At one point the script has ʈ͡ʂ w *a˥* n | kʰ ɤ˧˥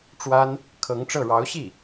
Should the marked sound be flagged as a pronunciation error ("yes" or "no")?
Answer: no